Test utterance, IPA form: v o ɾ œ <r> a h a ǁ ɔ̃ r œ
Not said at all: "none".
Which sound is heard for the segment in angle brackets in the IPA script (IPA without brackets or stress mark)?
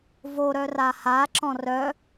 r